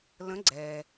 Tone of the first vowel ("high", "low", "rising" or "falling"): rising